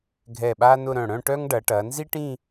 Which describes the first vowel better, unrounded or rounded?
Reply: unrounded